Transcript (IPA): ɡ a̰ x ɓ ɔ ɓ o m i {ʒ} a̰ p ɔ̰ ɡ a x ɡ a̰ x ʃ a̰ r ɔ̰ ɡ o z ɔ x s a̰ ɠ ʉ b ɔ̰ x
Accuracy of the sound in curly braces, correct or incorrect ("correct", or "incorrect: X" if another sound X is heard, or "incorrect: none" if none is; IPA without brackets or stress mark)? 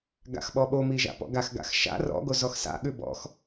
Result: correct